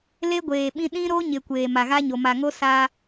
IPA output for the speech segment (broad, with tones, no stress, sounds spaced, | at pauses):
l e˦ ɡʷ eː˨ ɓ ĩ˦ ɗ ĩ˦ ɾ o˦ ɲ ɪ˨ kʷ eː˨ m a˨ ɣ a˦ ɲ o˨ m a˨ ŋ o˦ s a˦